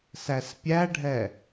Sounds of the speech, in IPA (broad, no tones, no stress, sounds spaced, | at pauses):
s æ s pʲ æ ɖʱ ɛ